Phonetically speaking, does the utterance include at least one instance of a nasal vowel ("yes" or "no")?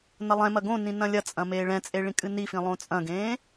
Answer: yes